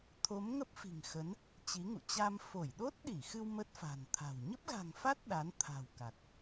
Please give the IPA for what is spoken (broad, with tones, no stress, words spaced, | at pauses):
t̪ʰo˨˦mŋə˦˥p̚fi̤˨˩ŋ xə˨˦n | t͡ɕi˨˦ŋṵ˧˨ t͡ɕa˧m fo˧˩jɗo˦˥t̚ɗi˧˩xɨ˧w mə˦˥t̚fa̤˨˩nt̪ʰa̤˨˩w ɲə˦˥p̚ɣa̤˨˩ŋfa˦˥t̚ ɗa˨˦n t̪ʰa̤˨˩wka˨˩t̚